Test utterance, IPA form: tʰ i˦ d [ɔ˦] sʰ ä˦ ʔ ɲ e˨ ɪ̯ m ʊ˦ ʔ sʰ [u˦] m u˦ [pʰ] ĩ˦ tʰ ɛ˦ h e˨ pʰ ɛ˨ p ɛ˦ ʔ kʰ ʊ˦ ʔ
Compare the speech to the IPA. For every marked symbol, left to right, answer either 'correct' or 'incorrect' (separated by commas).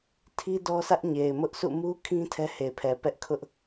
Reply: correct, incorrect, incorrect